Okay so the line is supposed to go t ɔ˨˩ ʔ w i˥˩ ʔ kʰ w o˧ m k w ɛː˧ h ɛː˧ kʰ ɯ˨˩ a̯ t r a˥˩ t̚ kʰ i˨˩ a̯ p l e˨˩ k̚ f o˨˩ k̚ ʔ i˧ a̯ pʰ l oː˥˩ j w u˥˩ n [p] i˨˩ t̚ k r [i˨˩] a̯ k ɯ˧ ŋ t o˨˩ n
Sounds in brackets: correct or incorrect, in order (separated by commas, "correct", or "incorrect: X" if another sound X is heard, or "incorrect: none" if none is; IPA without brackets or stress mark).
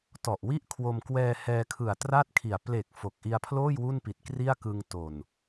correct, incorrect: i˥˩